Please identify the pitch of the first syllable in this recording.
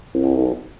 low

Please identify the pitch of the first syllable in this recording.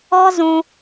high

